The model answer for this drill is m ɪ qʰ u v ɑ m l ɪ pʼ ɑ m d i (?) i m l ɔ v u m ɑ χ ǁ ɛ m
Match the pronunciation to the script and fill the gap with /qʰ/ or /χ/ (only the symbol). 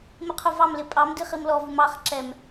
χ